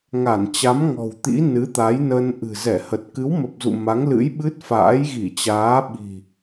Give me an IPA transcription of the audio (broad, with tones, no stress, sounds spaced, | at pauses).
ŋ a˧˩ n t͡ɕ a˨˦ m ŋ ɔ̤˨˩ w t̪ ḭ˧˥ n ɨ˨˦ t̪ a˨˦ j n ə˧ n ʔ ɨ̤˨˩ z ɛ˧˩ h ə˨˩ t̚ k ɨ˨˦ w m ə˨˩ p̚ z ṵ˧˨ m a˨˦ ŋ l ɨ̰˧˥ j ɓ ɨ˦˥ t̚ f a̰ː˧˥ j ɣ i˧˩ t͡ɕ aː˨˦ ɓ i̤˨˩